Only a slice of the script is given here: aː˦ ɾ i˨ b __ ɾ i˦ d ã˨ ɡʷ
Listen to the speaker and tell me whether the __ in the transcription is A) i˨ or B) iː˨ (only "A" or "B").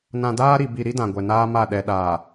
A